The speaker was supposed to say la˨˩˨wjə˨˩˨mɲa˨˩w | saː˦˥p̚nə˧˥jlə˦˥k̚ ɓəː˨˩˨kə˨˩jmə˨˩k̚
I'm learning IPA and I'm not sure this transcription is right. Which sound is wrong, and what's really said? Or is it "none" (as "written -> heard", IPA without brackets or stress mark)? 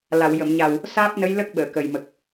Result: none